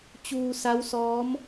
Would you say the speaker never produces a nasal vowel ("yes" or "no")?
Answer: yes